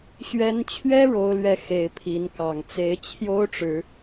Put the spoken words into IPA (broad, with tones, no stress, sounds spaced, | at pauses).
ɕ ɥ ɛ˨˦ n t͡ɕʰ ɥ ɛ˦ ɻ o˨˦ ʊ̯ l ɥ ɛ˨˦ x e˨˦ ɪ̯ pʰ i˨˦ n k ɑ˨˩ ŋ t͡s e˨˦ ɪ̯ t͡ɕʰ j o˦ ʊ̯ ʈ͡ʂ ɻ̩˨˦